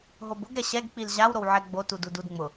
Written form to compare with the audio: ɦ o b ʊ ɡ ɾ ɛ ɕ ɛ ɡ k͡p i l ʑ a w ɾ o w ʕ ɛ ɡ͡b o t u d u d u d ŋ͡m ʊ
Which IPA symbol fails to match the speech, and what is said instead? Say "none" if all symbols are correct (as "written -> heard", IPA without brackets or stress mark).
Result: none